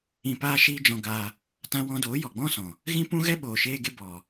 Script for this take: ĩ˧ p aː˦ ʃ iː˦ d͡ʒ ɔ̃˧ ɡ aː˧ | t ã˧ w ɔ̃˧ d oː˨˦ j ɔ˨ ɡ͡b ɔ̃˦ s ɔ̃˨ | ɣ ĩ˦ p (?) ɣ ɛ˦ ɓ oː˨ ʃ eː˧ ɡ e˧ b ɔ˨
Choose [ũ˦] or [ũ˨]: ũ˦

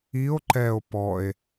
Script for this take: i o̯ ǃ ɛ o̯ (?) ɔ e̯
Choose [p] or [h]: p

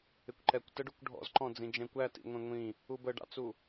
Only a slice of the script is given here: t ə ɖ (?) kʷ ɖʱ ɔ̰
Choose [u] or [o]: u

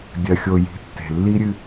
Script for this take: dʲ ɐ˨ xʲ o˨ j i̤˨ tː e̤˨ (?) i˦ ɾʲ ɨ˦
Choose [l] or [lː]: lː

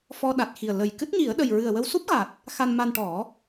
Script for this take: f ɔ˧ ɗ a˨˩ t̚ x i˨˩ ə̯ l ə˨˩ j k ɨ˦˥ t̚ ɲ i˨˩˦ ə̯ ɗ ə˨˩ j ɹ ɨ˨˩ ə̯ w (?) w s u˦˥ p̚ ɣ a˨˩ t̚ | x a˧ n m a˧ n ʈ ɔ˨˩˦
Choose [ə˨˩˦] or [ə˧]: ə˧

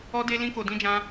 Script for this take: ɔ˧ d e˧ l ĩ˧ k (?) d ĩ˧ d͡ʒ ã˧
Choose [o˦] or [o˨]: o˨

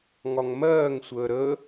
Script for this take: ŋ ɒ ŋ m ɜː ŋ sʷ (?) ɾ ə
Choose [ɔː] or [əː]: əː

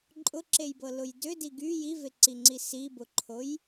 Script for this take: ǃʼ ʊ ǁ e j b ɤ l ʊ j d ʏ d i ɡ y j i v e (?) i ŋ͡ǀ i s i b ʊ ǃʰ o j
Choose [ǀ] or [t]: ǀ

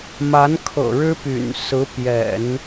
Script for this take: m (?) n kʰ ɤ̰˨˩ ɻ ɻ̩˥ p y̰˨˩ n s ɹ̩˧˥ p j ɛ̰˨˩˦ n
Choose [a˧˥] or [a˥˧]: a˧˥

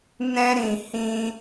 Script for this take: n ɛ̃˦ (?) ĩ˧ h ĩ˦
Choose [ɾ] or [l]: ɾ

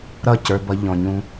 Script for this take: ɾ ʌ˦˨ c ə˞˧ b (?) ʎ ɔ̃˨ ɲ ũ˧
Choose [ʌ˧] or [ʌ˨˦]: ʌ˧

